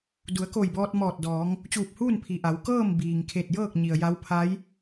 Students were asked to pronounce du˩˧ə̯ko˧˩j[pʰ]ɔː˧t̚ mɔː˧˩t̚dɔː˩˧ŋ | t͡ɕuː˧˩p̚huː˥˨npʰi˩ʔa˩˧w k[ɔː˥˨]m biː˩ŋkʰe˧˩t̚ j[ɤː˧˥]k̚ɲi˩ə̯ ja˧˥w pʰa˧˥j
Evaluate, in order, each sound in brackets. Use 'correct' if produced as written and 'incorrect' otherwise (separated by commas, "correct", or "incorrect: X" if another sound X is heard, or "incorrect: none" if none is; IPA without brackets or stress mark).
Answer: incorrect: b, incorrect: ɤː˥˨, incorrect: ɤː˥˨